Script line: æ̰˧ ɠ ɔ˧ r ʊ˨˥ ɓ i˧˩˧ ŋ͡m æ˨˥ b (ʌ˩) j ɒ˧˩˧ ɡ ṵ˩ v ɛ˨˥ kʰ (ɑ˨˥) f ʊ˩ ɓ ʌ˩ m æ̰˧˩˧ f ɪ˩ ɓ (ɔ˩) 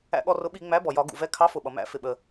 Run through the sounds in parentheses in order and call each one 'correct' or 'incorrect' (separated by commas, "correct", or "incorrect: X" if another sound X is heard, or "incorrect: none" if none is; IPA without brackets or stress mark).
incorrect: ɔ˩, correct, incorrect: ə˩